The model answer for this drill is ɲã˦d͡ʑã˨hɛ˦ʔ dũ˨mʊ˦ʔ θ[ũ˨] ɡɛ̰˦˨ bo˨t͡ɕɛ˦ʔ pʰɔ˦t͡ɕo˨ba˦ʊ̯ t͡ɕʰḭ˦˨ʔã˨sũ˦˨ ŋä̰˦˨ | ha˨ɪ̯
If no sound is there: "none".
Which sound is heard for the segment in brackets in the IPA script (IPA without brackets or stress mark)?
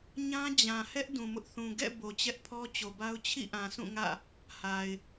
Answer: ũ˨